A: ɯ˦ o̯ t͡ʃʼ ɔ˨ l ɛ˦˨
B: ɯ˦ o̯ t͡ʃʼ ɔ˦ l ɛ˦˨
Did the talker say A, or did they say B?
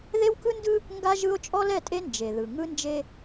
B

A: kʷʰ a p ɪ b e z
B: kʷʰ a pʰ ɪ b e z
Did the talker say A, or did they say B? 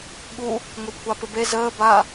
A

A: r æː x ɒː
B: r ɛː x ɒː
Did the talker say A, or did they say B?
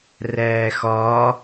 A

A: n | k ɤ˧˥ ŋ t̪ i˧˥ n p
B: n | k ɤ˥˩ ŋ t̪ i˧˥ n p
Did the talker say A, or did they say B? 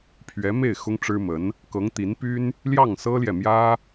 A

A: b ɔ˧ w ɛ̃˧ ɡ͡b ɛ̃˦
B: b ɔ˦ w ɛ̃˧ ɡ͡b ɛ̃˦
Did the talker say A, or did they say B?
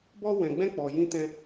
B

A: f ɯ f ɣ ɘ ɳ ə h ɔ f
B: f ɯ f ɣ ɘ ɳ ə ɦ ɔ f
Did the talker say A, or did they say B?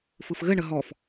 B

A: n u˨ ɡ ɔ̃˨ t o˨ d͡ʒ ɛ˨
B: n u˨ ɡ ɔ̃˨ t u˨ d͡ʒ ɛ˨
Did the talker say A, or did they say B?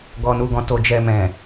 A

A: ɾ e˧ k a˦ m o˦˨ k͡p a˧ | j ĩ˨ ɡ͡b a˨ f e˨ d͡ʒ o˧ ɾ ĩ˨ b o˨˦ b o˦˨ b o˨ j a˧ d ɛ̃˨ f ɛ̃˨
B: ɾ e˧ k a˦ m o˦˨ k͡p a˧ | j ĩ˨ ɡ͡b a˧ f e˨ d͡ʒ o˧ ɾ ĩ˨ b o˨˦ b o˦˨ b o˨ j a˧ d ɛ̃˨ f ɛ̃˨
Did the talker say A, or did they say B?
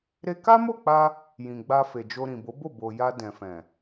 B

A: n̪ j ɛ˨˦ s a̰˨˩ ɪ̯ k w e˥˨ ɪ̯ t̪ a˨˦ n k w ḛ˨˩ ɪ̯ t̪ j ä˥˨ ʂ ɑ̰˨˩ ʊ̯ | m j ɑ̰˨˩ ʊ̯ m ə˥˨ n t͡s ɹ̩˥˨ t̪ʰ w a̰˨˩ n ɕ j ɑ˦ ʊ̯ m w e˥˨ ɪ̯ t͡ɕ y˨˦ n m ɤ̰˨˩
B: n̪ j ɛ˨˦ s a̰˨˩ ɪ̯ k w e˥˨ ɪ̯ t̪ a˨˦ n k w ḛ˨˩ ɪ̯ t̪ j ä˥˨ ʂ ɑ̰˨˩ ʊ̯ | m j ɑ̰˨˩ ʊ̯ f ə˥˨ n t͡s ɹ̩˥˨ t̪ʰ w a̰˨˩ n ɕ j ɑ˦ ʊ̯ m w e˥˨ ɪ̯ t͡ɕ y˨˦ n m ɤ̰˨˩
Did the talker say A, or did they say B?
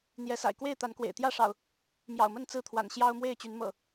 A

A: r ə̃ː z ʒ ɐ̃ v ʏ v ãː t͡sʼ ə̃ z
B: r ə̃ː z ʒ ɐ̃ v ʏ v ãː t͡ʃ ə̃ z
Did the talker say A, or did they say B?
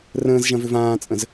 A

